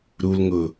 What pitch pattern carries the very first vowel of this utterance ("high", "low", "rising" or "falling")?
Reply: low